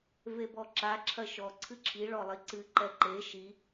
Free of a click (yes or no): no